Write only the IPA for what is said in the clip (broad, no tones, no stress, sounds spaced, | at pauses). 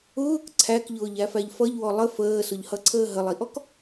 ʊː k ǀʰ æ k ʎ ʊː ʎ æ f æ ʎ f ʌ ʎ w ɔ lˠ ə f əː s ʊ ʎ h ʌ ǀʰ əː ɦ ə lˠ i ʔ ɔ k